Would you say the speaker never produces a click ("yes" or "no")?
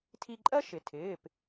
no